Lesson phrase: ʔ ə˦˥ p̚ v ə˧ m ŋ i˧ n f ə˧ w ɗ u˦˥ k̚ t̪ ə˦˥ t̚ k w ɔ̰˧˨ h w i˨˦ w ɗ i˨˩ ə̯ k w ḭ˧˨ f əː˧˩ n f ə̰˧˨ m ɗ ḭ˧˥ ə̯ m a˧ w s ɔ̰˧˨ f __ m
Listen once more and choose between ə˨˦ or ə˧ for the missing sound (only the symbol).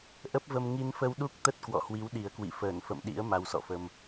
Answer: ə˧